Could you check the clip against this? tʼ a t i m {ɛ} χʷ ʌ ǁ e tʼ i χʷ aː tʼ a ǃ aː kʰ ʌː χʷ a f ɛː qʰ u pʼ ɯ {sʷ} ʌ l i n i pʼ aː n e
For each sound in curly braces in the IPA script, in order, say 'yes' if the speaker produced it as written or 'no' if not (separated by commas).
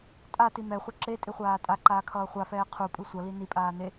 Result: yes, yes